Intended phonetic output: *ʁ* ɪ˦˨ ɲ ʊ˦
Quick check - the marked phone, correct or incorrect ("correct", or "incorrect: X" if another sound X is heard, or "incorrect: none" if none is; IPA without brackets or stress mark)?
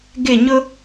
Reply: incorrect: ɡ